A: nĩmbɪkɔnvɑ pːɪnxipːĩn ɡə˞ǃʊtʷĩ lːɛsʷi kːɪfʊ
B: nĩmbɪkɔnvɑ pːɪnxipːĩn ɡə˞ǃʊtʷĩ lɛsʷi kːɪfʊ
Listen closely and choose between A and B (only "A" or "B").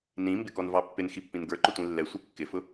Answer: A